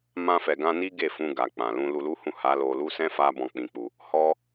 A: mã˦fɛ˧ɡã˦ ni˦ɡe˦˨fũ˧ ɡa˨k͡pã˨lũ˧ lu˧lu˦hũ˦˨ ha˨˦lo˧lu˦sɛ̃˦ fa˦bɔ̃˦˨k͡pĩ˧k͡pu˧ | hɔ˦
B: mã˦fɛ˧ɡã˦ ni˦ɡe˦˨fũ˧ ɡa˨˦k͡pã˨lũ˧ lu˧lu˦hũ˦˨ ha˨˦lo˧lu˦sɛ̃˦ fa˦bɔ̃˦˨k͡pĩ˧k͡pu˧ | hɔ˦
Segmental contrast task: A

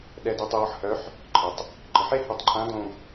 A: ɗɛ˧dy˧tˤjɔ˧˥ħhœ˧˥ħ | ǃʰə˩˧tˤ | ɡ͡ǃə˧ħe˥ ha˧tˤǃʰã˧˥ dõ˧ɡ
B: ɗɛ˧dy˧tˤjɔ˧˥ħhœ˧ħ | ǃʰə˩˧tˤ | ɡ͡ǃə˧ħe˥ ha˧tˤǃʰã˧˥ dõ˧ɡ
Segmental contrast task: A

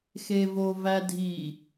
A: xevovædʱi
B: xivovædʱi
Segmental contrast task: A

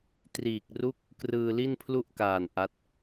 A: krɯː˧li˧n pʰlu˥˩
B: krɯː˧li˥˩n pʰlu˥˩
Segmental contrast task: B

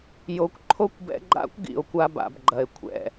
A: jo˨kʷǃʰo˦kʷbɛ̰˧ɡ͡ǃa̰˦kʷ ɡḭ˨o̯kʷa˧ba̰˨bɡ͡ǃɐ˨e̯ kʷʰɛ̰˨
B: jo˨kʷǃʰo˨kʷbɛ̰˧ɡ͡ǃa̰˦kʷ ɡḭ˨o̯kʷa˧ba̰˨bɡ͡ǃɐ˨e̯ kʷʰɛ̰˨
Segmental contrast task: A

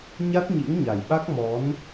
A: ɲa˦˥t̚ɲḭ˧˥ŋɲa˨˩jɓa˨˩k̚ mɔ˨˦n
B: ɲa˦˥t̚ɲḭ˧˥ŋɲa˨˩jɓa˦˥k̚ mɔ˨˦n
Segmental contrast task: B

